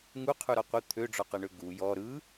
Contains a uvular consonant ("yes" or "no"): yes